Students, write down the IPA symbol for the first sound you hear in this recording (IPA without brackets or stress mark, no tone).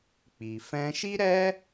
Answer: k͡p